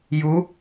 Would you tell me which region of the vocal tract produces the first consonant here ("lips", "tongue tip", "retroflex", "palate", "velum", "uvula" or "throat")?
palate